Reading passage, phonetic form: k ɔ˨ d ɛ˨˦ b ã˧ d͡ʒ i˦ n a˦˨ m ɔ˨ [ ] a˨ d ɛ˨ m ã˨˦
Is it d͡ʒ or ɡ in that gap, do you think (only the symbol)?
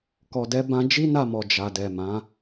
d͡ʒ